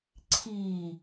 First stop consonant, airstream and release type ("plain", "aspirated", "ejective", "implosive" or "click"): click